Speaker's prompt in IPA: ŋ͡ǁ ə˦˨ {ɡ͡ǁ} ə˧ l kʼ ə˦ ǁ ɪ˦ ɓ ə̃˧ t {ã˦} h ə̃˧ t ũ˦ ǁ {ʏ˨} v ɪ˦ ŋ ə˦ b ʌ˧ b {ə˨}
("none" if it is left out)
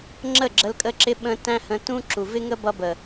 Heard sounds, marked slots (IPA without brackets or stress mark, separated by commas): ɡ͡ǁ, æ̃˦, u˨, ə˨